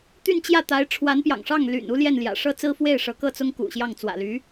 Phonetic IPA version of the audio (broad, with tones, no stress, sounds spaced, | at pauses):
t̪ y˥˧ n t͡ɕ j ä˥˩ t̪ a˧˥ ɪ̯ ʈ͡ʂʰ w a˧˥ n p j ɑ̰˨˩ ŋ ʂ ɑ˥˩ ŋ l y̰˨˩ n u˥ l j ɛ˥˩ n l j ä̰˨˩ ʂ ɤ˥ t͡s ɹ̩˥ f w e˥˩ ɪ̯ ʂ ɤ˧˥ k ɤ˥˩ t͡s ʊ˥ ŋ k ṵ˨˩ ɕ j ɑ˥˩ ŋ t͡s w ä̰˨˩ l y˧˥